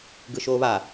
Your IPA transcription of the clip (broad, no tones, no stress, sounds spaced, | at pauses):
ɡ ɯ ʃ oː β a